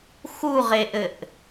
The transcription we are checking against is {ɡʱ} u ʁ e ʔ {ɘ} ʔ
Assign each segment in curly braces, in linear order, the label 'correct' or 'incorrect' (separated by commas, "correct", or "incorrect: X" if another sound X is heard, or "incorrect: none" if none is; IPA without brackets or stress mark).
incorrect: x, correct